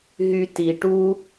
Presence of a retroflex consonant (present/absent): present